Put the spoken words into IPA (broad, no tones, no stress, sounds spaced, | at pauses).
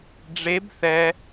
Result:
ɖ͡ʐ e b θ ɛ